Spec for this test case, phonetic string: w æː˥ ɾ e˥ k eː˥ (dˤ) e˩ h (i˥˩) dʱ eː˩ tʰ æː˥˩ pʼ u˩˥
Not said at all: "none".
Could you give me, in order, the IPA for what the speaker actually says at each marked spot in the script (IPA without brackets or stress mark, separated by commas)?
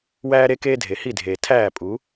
dʱ, i˥˩